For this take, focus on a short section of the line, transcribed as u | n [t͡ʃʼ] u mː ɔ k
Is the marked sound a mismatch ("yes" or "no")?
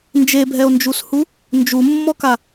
yes